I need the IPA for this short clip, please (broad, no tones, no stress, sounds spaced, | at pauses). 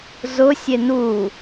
z ʊ sʲ e n u